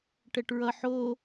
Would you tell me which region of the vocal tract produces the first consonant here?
retroflex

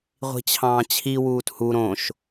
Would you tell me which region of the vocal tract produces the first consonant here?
uvula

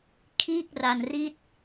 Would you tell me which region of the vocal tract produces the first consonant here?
velum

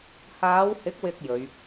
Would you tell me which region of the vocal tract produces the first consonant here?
throat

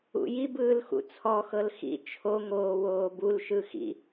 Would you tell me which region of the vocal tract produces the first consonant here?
palate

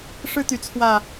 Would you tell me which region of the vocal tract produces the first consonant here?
retroflex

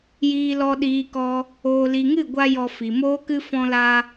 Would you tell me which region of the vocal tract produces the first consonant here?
palate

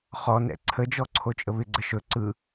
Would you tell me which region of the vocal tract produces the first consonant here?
uvula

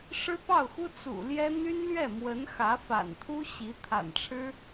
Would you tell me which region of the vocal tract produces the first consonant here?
retroflex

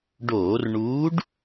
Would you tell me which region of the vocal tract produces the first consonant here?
retroflex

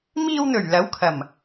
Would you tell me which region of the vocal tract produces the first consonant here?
lips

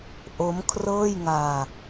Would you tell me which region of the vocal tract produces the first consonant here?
throat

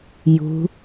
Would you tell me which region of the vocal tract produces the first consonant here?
palate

